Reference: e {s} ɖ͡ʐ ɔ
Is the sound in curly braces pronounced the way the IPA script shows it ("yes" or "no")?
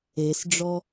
yes